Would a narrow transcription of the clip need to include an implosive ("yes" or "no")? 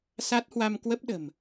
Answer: yes